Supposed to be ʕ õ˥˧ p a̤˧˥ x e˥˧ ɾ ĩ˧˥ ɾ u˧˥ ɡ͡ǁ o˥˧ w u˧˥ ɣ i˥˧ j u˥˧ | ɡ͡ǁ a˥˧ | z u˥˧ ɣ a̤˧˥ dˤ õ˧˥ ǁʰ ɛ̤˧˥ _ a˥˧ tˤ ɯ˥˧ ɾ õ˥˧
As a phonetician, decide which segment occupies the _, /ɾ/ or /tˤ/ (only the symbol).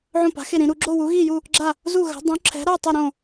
ɾ